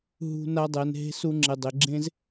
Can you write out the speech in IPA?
ɦ ṳ˧ n a˧ dˤ ɛ˨ n ɦ e̤˧ s u˧ ŋ͡ǁ ɪ˨ dˤ ɪ˨ ɡ͡ǁ ẽ˧ z

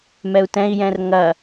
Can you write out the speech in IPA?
m ɛ u̯ t ɛ̃ i̯ j ɛ̃ r ŋ ɐ

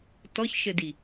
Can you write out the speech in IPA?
t ɔ ç ʃ ɘ d i

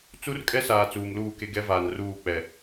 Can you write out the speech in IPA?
t͡s u˦ r kʼ ɛ˦ s aː˨ t͡s uː˨ m l uː˦˨ k e˦ ɡ ɛ˦ v aː˨ n r uː˦˨ k͡p ɛ˨

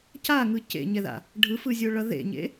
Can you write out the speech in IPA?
c a ŋ ɯ c ḛ ɲ ɛ ð a̰ | ɖʱ ɯ f ɯ zʲ o ɭ ʌ ð ḛ ɲ ḛ

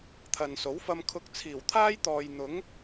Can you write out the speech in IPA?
t̪ʰ ɐ˨ n s o˨˥ w f ɐ˧ m kʰ ʊ˧ k̚ t͡sʰ iː˨˩ w t̪ʰ aː˥ j t̪ ɔː˨ j n̪ ʊ˨˥ ŋ

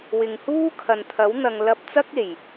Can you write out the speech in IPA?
w ɪ˨ ŋ h uː˥ kʰ ɐ˨ n t̪ʰ ɐ˨˥ w n̪ ɐ˨ ŋ l ɐ˧ p̚ t͡s ɐ˥ k̚ e˨˩ j

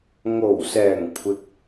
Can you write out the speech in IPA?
ŋ o˨˩ w s ɛː˨˩ ŋ kʷʰ ɪ˨ k̚

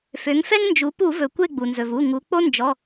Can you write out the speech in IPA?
f ø˩˧ ŋ f ɛ˦ ŋ n d͡ʒ u˩˧ p u˧˩˧ v ɵ˩ kʷ e˦˨ ɡ͡b u˩ n z ɵ˩ v u˩˧˩ ŋ u˩˧ k͡p o˦ n d͡ʒ ɔ˩˧˩

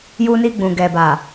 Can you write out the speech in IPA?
j u˧ n i˧ ɡ͡b ũ˨ ɡ ɛ˨ b a˨

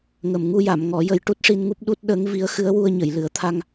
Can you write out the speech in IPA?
ŋ ə˨˩ m ŋ u˧ j a˨˩˨ m ŋ ɔ˨˩˦ j ə˧ j ʈ u˦˥ t̚ ʂ i˧ n ŋ u˦˥ p̚ ɗ u˦˥ t̚ ɗ əː˧˥ ŋ v i˧˥ ə̯ x ɨ˧˥ ə̯ w u˧ ə̯ ɲ ə˨˩˨ j l ɨ˨˩˦ ə̯ t̪ʰ a˧ ŋ

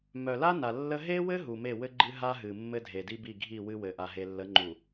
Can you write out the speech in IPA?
m œ˨ l a˦ n a˨ lː ə˦ ɦ e˦ w ɘ˦ ɦ u˨ m e˦˨ w ɘ˦ ɡ͡ǃ ɨ˦ ɦ a˦ ɦ ɨ˨ mː ɘ˦ dʱ e˨ d i˦ b i˦˨ ɡʱ i˦˨ w ɨ˦ w ɘ˨ ʔ a˨ ɦ e˨ lː ə˨˦ ŋ͡ǃ u˨

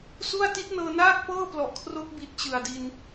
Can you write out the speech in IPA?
s u˥˩ a̯ t i˦˥ t̚ n ɤː˧ n aː˥˩ k̚ p ɤː˥˩ p l ɔ˨˩ ʔ kʰ r o˦˥ k̚ b i˨˩ t̚ t͡ɕ ɯ˨˩ a̯ d i˧ n

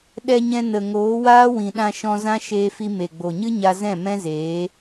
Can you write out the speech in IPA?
ɗ ɛ˧ ɲ ɛ̃˧ n ə˨ ŋ oː˨˦ w aː˦ w ĩ˨ ɗ ã˧ ʃ ɔ̃˧ z ã˦ ʃ eː˧ f i˧ m e˨ ɡ͡b o˨ ɲ ɨ˦ ɲ a˧ z ɛ̃˦˨ m ɛ̃˦ z eː˨˦

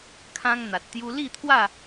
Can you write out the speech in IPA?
kʰ ã˦ ŋ n̪ a˨ t̚ t̪ j u˧ l i˥˧ t̪ʰ w a˥˧

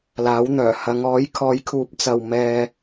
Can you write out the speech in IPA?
l aː˨˥ w n̪ œː˨˩ h ɐ˨˧ ŋ ɔː˨˥ j kʰ ɔː˨˥ j kʰ uː˨˥ p̚ t͡s ɐ˨ w m ɛː˧

